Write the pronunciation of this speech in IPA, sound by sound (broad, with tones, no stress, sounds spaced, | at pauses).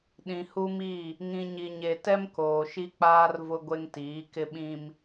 ɗ ĩ˨ h u˦ m i˦˨ | ŋ ĩ˨ ɲ i˨ ɲ e˨ t ɛ˦ m k oː˨ ʃ i˦ k͡p aː˦ r v ʊ˦ ɡʷ e˦ ŋ t iː˨˦ k ɪ˦ ɓ ĩ˦ m